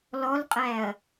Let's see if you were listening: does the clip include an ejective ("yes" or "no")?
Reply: yes